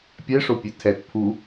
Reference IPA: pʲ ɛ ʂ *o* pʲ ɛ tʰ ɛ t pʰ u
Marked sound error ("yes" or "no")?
no